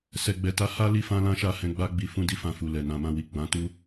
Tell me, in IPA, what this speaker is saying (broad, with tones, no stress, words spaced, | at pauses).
sɛ˨ɡ͡bɛ˨ta˨˦ ha˦ li˦fã˦lã˦ʃa˦˨ hɛ̃˧ɡ͡ba˦ɡ͡bi˧ fũ˦di˦fã˧ fu˨lɛ˨ nã˨mã˧ wi˨ ɡ͡bã˨˦tu˦